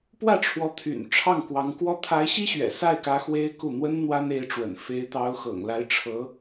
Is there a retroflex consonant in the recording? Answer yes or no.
yes